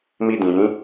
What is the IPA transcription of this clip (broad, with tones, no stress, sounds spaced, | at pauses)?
m i˧ d ĩ˨ j ĩ˨˦